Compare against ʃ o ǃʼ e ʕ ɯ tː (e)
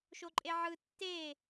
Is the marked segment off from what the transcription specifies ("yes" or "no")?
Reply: no